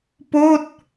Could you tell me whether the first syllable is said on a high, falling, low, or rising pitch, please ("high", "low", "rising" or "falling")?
falling